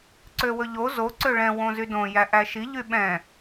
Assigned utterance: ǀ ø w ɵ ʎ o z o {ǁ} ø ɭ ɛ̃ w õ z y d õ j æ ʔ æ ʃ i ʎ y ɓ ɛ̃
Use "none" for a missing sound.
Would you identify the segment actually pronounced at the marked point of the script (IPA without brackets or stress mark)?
ǀ